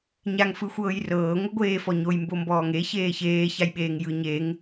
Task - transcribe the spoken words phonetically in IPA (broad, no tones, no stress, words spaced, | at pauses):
ɲaŋfɯxʷɤːjrɤː ŋʷɯɡʷeːfɔɲoj mbombɔːŋe çeːçeː çajɓeːŋjɯ ɲeŋ